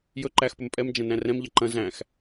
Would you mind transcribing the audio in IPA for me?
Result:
j ɵ ǃ æ x p ɵ m pʼ ɛ m d͡ʒ ɐ̃ n æ̃ r ɛ̃ m ʎ ɐ ǃ ɐ̃ z æ̃ x

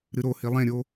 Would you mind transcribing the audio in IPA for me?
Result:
ɾ ɨ ɾ o h i lˠ ẽ ɾʲ o

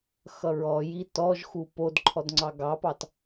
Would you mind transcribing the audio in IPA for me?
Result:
x ʌ ɹ ɔ j i t ɔ ʒ x u p o d ǃʰ ɔ d ŋ͡ǀ ɑ ɡ ɑ p ɑ t

